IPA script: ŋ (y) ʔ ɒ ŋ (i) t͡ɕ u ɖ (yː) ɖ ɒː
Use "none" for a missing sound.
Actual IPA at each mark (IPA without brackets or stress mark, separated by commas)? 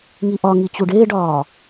i, i, eː